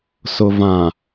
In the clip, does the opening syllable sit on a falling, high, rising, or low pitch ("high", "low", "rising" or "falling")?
low